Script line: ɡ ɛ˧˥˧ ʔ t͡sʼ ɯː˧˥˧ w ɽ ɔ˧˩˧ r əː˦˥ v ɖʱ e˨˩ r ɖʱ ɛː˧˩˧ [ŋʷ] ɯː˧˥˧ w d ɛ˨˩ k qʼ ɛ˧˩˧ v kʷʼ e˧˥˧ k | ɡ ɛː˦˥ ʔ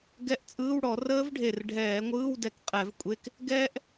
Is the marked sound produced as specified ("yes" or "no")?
yes